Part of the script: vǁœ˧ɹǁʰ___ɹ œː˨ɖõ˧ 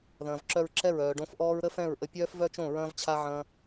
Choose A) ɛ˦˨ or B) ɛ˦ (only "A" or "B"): A